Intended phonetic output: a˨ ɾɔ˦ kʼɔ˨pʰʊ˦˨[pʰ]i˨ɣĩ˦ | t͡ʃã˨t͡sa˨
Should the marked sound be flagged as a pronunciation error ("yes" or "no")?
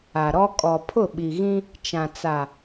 yes